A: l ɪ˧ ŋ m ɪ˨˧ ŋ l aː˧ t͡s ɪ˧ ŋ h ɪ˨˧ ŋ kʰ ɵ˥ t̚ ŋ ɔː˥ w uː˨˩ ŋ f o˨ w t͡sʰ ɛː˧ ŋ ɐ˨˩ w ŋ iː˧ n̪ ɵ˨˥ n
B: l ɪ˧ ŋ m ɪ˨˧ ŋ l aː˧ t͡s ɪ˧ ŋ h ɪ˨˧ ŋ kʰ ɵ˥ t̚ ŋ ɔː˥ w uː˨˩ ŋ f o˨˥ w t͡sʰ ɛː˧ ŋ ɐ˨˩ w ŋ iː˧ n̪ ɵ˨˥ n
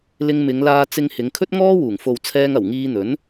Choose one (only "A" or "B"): A